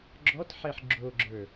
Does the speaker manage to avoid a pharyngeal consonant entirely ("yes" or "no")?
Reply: no